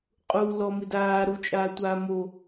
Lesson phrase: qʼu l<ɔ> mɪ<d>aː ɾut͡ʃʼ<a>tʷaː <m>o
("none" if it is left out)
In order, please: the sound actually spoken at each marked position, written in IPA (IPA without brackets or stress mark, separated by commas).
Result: ɔ, d, aː, m